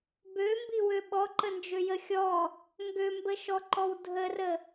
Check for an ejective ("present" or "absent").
absent